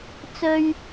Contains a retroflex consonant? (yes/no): no